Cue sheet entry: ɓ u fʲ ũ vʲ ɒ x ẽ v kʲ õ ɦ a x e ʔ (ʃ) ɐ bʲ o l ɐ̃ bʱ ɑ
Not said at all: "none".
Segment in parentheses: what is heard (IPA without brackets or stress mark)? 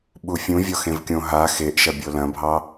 ʃ